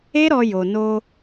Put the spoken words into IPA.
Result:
e˦ɾɔ˧ jo˨no˧

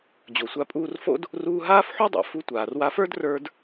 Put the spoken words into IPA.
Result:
d͡ʑo˩sʷa˧pʼuː˧rfo̰˥d | ruː˧ɦaː˥fħu˥dˤa̰˩ fu˧tʷaː˩rwa˧fə˞˥d rə˞˧d

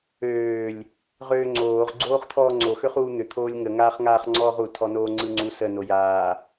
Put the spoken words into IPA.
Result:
øːlʲ | ʁøːŋ͡ǀoːʁ ɡ͡ǀoːχt̪ʰɔːŋ͡ǀo xøχuːn̪ʏ t̪ʰoːlʲŋə ŋaːχŋaːχŋ͡ǀɔːʁu tʰɔnoːŋ͡ǀɯŋ͡ǀu sə nojaː

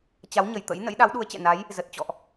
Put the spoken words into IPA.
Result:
t͡ɕa˨˦wɲə˨˩j t̪ə̰˧˥j nə̰˧˥jɗa˨˦wɗu˨˦ə̯ t͡ɕɛ̰˧˨na˨˦j | zə˨˩t̚t͡ɕɔ̰˧˨ʔ

